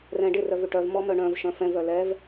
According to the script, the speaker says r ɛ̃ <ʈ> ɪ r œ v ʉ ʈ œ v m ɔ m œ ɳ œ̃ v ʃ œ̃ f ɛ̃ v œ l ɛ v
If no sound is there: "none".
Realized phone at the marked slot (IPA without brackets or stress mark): ɖ